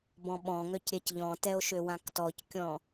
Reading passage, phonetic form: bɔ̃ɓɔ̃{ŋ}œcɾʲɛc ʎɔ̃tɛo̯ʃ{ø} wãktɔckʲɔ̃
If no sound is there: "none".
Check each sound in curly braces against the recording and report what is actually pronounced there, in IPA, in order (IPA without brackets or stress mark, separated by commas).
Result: ŋ, ø